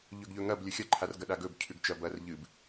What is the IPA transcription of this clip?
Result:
ʎ ɵ ɡ ʎ ɵ ŋ ɐ b lʲ ɵ xʲ ɐ ǃʰ a r ɡ ɐ ɗ a ɡ ɵ b cʰ ʉ ɡ t͡ʃ ɐ b ɐ r ʎ ɨ b

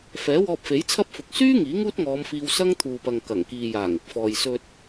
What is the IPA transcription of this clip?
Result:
f ɛː˨˥ w ɔː˧ p̚ f e˨˥ j t͡sʰ ɐ˥ p̚ f ʊ˨ k̚ s yː˥ ŋ iː˨˥ ŋ uː˥ t̚ ŋ ɔː˨˧ m f iː˧ w s ɐ˥ ŋ t̪ʰ uː˨ p ɐ˨ ŋ k ɐ˨˩ ŋ k iː˨ j aː˨˩ ŋ ɪ˨ k̚ f ɔː˨ j s ɵ˧ t̚

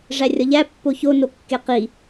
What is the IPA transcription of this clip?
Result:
ʐ æ rʲ ɒ ʎ æ pː o ç o n o kː e q i

